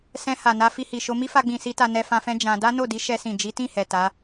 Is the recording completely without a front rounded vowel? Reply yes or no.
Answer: yes